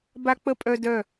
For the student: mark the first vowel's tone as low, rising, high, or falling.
high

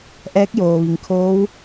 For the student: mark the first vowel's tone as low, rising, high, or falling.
rising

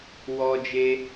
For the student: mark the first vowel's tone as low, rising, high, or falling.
high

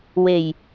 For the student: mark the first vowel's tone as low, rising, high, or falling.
low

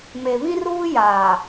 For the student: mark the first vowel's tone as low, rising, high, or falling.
low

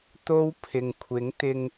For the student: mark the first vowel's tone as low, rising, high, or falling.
high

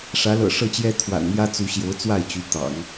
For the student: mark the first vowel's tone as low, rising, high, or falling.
rising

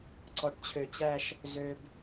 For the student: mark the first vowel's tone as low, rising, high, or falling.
low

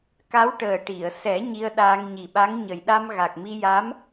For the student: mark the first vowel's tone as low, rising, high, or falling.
rising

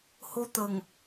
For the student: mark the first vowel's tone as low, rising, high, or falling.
high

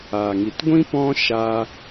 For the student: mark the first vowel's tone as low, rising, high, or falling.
low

